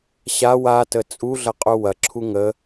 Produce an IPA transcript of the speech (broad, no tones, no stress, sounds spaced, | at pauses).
ɕ a w a t ə t͡sʼ u ɮ ɐ qʼ u w ɐ ǁʰ u ŋ ə